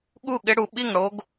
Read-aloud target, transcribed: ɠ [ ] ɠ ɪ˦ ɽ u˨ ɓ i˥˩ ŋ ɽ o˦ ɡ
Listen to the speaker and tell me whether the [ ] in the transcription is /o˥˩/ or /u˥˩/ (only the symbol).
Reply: u˥˩